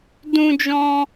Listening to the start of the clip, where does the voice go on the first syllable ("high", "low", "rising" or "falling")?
high